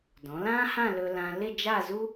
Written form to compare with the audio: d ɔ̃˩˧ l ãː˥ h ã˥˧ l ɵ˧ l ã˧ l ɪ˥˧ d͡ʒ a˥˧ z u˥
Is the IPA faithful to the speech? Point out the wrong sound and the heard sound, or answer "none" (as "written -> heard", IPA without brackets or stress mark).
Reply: none